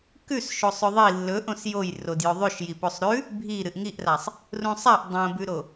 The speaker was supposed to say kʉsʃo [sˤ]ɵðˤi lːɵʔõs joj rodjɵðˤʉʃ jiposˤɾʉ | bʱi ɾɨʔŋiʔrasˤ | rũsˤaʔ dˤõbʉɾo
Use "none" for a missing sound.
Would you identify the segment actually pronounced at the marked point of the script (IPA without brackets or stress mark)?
sˤ